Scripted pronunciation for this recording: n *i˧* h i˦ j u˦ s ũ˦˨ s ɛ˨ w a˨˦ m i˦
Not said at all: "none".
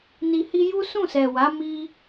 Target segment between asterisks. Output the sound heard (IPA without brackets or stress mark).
i˧